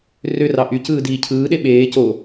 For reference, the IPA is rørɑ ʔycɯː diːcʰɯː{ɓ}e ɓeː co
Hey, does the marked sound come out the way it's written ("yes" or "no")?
no